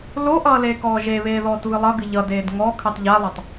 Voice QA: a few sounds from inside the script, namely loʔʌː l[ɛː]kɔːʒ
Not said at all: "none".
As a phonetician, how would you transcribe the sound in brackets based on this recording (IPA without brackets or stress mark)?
eː